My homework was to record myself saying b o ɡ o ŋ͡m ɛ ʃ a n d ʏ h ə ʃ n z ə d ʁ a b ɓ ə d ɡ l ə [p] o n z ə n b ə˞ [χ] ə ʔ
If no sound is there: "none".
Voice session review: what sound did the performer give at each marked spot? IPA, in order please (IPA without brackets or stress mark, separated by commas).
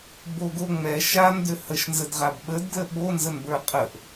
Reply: ɓ, qʼ